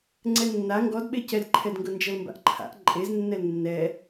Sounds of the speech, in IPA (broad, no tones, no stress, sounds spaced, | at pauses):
ŋ͡ǀ ɛ nː a ŋ ɡ ɔ d ɓ e c ɛ d ǃʰ ɛ d ŋ ɡ ɤ n d͡ʒ ɤ l m b a̰ ʔ ǃʰ a̰ ʔ ǃʼ e z nː ɛ l nː ɛ